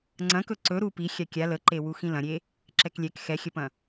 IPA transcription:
ŋ͡ǀ ɐ̃ k ɵ ǀ ɵ ɾ u p i xʲ a kʲ a l ə ǃ e w u x ĩ l ɐ̃ ɾʲ e | ǁ ɛ k lʲ ɛ k x ɛ xʲ ə p ɐ̃

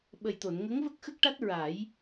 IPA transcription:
ɓ ə˨˩ j t̪ o˨˩˨ n ŋ ə˧˥ ŋ v ə˦˥ k̚ x ə˦˥ k̚ ʈ a˦˥ t̚ ɹ a˨˩˦ j

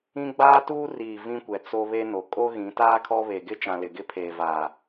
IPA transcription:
ĩ˦ ɡ͡b aː˦ t uː˦ r iː˨ v ĩ˦ kʷ ɛ˨ t͡s o˦ β e˦ n o˨ kʼ o˦ ɣ ĩ˨˦ t aː˦ kʰ ɔ˦ β e˨ ɡ ɪ˦ t͡ʃ ã˨ l ɪ˨ ɡ ɪ˦ pʰ eː˨ v aː˨

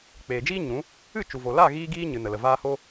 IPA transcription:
k͡p eː˨ d͡ʒ iː˦ ɲ ũ˨˦ | ɨ˦˨ t͡ʃ u˨ v o˨ l a˦˨ ɣ iː˦ ɡ iː˦ ɲ ɨ˨ n ə˨ l ə˨ v aː˦ h o˦

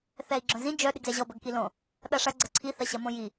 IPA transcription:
θ ɛ i̯ ɡ͡ǁ œ̃ z ĩ d͡ʒ œ ɗ ɪ ɡ z ɛ ʑ ɔ b ɐ ɡ k i l õ | ɗ ɐ ʂ ɐ ɡ͡ǀ ɐ ǀʰ i θ ɐ ɕ ɐ m õ j i

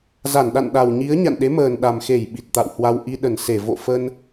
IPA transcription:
z a˧˩ n ɗ a̰˧˨ n ɗ a˨˩ w ɲ i˨˦ ə̯ ɲ a̰˧˨ n ɗ e˨˦ m əː˨˩ n ɗ a˨˩ m x e˧˩ j ɓ i˨˩ t̚ t̪ a̰˧˨ w h w a˧ w ʔ i˧ ɗ ə˧˩ n s e˧˩ v o̰˧˨ f ə˧ n

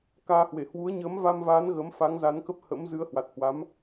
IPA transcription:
k aː˧ h w e˧˩ h w u˨˦ ə̯ ɲ əː˨˦ m v a˧ m v aː˨˦ n ɣ ə˨˦ m f a˨˦ ŋ z a˨˦ n k ə˦˥ p̚ h ə̰˧˥ m z ɨ˨˦ ə̯ h w a˨˩ t̚ h w a˨˦ m

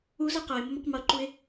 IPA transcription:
u z ɤ q ɤ ɪ̯ m o m ɐ q m ɤ ǃ u ɪ̯

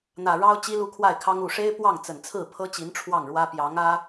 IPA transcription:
n̪ ä˨˩ ɻ ɑ˥ ʊ̯ t͡ɕ i˥ l u˥˧ kʰ w a˥˩ ɪ̯ kʰ ɑ˥ ŋ u˨˩ ʂ e˥ ɪ̯ p w ɑ˥˩ ŋ t͡s ə˨˩ n t͡sʰ ɹ̩˥˩ pʰ ɤ˥ t͡ɕ i˧˥ n ʈ͡ʂʰ w ɑ˥˩ ŋ ɻ w ä˥ p j ɑ˧˥ ŋ ä˥

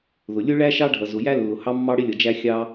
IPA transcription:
ð ʊ˩ lʲ ʊ˥ ɭ æ˥ ʃ ɑ˥ ɖʱ ʌ˩ z ʊ˩ j æ˥ lː ʊ˩ h ɑ˥ mː ɑ˥ ɽ ɪ˥ lʲ ʌ˩ d͡ʒ æ˥ xʲ ɑ˥

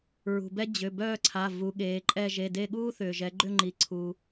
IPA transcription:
ɹ ṳ˩ b ɛ˥ d͡ʑ ʏ˩˧˩ b œː˦˨ ǀʰ a˩˧˩ v u˩˧ ɠ eː˩˧ ǃʼ ɛ˦˨ ʒ e˩˧˩ d e˦˨ ɠ uː˥ θ ʏː˩ ʒ ɛ˩˧ ɡ͡ǃ ʏ˦˨ ŋ͡ǃ i˩ ǀʰ uː˩

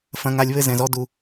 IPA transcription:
f ɐ̃˨ ŋ a˨ lʲ β ɘ˦ z ɛ̃˨ z ɔ˦ d u˨

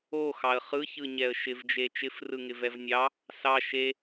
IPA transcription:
o x ɑ ə̯ χ ɯ ç ɯ ɲ ɛ ə̯ ʃ ɪ v d͡ʒ e t͡ʃ ɪ f r ɯ ŋ ɪ v ɛ v nʲ ɑ | s ɑ ʃ e

